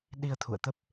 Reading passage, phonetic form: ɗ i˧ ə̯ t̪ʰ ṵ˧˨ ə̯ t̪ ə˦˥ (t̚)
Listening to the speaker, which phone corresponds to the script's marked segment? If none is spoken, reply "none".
p̚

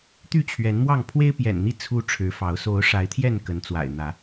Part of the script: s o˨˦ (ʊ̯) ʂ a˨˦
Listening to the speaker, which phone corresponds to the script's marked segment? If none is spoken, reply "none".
ʊ̯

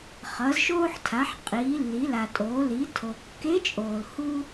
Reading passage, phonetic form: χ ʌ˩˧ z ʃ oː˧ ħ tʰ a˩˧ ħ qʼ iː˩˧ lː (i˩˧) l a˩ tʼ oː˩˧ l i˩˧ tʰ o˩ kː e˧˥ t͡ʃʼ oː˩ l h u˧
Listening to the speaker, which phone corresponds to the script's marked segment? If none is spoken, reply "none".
i˩˧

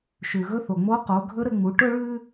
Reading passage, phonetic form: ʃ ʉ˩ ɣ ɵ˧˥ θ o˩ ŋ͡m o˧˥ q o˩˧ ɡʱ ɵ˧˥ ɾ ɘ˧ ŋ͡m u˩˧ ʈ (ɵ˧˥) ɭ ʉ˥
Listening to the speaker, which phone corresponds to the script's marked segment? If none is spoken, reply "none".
ɵ˥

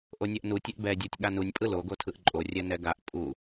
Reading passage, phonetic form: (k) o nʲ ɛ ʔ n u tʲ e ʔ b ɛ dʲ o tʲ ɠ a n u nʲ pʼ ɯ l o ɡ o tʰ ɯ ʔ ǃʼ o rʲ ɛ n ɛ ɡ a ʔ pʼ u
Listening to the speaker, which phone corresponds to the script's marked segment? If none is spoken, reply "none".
ʔ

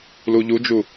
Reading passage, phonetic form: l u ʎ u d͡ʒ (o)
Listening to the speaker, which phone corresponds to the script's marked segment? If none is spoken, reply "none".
u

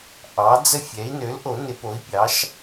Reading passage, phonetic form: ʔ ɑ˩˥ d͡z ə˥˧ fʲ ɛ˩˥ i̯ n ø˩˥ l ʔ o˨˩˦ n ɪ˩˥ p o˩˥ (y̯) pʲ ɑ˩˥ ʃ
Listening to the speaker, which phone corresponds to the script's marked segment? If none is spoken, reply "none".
i̯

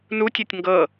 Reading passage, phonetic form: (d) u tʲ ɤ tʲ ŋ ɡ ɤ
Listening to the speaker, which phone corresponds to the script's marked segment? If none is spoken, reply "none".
n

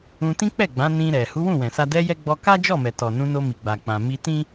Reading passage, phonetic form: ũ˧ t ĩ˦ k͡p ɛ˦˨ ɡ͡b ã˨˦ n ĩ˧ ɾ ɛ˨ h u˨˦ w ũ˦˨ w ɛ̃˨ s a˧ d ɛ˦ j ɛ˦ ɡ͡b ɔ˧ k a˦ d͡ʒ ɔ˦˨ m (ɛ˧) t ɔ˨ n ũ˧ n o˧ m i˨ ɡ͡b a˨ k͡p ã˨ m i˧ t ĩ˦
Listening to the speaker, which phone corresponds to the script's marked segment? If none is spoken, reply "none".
ɛ˨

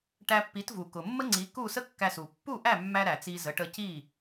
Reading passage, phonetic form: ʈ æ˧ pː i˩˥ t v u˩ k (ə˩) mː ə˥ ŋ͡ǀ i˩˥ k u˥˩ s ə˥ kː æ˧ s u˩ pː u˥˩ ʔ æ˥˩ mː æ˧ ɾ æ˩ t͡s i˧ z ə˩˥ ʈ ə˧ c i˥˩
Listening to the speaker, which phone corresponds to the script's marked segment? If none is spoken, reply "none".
ʊ˩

